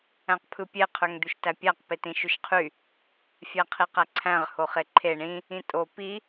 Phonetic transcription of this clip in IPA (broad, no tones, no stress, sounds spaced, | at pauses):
æ̃ q pʰ ɯ pʲ e qʰ ø ŋ d̪ y ʃ t æ pʲ æ q p e t ĩ ʃ y ʃ qʰ y | fʲ æ qʰ i q æ ǀʰ æ̃ ʁ h o χ e ǃʰ e ɳ ĩ | ĩ tʼ o p i